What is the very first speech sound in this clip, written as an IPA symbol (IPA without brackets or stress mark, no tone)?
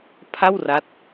pʰ